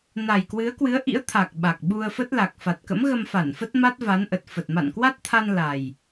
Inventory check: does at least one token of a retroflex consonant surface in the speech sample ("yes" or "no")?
no